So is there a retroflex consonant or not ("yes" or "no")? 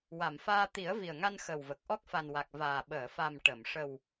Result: yes